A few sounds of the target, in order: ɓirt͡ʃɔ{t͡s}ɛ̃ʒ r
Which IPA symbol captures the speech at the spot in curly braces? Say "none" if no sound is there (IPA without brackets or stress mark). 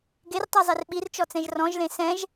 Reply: t͡s